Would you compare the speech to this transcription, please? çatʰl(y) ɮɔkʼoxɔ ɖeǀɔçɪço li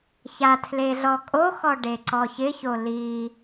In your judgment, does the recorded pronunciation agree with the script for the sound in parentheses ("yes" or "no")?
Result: no